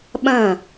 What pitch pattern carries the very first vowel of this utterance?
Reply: falling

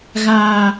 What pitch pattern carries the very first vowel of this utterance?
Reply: high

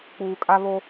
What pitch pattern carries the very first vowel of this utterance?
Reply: low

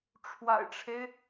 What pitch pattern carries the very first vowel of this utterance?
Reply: low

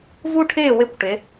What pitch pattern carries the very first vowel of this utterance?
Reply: high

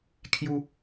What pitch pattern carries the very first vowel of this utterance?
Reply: high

